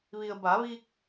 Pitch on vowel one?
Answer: low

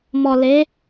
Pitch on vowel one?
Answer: low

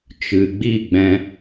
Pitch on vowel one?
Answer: low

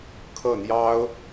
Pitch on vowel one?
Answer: falling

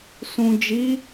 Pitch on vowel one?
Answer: low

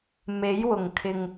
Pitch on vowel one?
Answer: rising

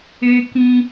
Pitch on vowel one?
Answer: high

